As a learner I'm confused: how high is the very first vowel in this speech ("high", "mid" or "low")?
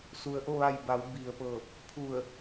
high